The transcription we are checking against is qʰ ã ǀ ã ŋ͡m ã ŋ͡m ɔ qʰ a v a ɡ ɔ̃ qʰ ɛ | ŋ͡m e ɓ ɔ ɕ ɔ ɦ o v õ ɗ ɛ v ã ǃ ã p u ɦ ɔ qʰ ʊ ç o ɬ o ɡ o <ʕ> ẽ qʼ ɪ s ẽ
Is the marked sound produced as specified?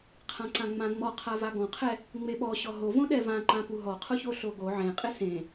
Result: yes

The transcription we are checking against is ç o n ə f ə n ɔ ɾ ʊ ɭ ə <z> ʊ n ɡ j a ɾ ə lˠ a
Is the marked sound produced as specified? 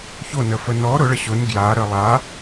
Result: no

